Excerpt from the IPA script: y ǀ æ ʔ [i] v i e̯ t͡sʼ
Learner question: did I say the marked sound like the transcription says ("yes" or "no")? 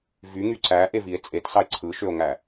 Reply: no